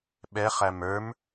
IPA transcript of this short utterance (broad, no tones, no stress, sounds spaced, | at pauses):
ɓ ɛ χ æ m ə˞ m